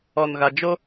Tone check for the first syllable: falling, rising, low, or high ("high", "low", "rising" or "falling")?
low